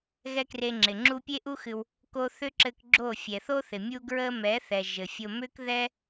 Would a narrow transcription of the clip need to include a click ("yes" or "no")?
yes